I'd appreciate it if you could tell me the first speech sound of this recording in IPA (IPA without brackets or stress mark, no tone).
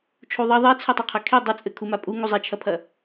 t͡ʃʰ